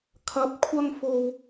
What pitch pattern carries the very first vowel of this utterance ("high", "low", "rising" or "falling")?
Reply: rising